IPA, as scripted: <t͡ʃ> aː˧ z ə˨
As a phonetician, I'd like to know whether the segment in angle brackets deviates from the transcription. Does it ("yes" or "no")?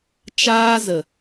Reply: no